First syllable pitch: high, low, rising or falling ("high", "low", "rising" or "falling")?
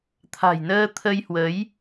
low